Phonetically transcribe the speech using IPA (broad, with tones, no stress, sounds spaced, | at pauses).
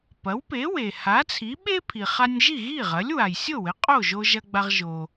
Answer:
p ɐ˩˥ w p e˩˥ w e˩ h a˩˥ t͡sʰ i˩˥ ɓ e˥ pʰ i˩ χ a˧ nʲ ʒ i˥˩ ɣ i˥˩ ʁ ɐ˩˥ lʲ w a˩ j sʲ o˥˩ w ɘ˩˥ qʼ o˥˩ ʒ o˧ ʒ ɐ˧ ɡ͡b a˧ ʁ ʒ o˩